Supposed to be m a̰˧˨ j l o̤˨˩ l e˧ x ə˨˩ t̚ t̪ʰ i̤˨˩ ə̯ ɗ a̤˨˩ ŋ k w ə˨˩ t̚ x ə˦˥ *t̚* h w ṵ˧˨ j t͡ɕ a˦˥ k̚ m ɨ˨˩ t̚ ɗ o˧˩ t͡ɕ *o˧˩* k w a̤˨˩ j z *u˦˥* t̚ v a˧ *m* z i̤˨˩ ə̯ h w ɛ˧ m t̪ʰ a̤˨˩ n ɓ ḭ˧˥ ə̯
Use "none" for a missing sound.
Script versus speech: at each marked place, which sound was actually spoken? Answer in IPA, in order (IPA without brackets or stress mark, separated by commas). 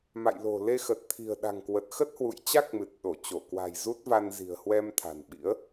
t̚, o˧˩, u˦˥, n